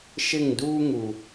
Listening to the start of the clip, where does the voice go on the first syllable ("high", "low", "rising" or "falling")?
falling